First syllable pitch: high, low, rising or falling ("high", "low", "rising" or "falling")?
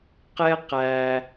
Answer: high